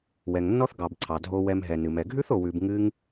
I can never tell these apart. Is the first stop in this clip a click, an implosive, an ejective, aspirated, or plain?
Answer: plain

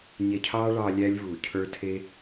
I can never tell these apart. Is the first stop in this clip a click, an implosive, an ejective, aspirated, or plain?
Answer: aspirated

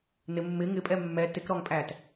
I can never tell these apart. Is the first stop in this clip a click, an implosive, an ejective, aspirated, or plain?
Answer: ejective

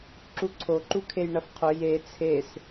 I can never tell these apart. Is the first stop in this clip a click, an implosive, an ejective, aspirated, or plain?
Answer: click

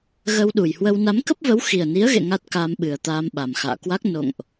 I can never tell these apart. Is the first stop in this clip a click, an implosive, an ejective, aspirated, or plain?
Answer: implosive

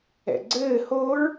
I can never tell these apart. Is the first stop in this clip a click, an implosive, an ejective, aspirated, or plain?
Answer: click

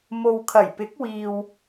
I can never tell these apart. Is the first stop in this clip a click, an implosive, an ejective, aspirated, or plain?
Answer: aspirated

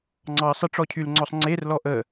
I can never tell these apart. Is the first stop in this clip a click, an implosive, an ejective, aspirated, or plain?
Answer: click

